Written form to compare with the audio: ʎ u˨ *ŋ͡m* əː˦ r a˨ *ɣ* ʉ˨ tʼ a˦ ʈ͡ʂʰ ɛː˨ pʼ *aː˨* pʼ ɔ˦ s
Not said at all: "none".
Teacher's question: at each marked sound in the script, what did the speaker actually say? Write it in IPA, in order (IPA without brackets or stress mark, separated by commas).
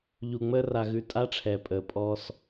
ŋ͡m, ɣ, əː˨